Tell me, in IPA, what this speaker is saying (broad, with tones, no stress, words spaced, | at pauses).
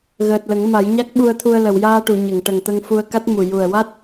ɣəː˨˩t̚lə˨˩˦ŋ ma˨˩˦jɲa˦˥k̚ɓu˧ə̯t̪ʰu˧ə̯ lə˨˩˨wjaː˧ʈu˨˩˨ ɲə˨˩˨ŋʈə˨˩ŋ t̪ə˧ŋfu˧ə̯ka˦˥t̚ mu˨˩ ju˨˩ə̯ wa˦˥t̚